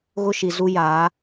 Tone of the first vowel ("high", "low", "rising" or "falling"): high